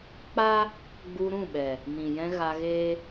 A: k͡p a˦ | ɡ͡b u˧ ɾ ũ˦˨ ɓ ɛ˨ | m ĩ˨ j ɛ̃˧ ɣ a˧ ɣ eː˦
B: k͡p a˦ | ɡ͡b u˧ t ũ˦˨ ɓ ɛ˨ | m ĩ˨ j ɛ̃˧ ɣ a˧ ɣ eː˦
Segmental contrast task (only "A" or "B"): A